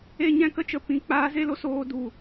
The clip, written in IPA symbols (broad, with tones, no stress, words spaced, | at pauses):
e˧ɲɛ̃˧kə˧t͡ʃə˨˦ pĩ˧ k͡paː˧ ze˦lo˦soː˧ du˨